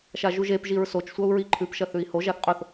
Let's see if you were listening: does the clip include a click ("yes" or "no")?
yes